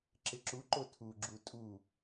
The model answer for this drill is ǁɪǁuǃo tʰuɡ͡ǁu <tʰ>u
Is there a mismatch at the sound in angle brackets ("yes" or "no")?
yes